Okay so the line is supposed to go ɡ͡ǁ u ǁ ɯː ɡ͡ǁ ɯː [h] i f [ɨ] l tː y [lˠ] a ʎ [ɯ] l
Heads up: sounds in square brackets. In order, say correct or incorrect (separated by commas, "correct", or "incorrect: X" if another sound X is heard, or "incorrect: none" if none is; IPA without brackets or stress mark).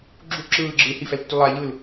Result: correct, incorrect: ɛ, correct, correct